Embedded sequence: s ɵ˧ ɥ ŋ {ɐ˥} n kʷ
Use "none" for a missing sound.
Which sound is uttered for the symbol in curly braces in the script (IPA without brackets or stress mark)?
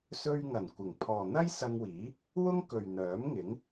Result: ɐ˨˩